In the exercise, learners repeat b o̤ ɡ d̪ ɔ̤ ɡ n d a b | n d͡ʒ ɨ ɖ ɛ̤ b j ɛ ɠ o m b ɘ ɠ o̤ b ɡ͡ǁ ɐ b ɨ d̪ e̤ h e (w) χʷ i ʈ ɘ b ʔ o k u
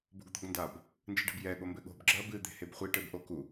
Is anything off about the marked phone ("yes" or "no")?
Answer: yes